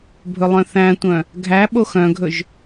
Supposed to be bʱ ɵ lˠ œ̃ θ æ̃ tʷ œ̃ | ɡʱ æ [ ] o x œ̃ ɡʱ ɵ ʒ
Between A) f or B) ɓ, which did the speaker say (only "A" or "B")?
B